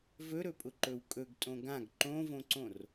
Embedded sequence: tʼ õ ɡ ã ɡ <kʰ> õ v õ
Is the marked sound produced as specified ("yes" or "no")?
no